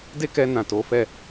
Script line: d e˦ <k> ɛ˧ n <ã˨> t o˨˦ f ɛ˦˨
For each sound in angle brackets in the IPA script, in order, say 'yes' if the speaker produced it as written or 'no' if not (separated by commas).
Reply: yes, yes